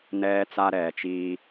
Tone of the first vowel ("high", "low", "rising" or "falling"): high